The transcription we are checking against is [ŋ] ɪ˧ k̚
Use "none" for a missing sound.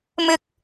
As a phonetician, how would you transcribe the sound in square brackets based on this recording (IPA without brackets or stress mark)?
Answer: m